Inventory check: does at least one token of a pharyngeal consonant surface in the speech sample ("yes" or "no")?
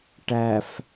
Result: no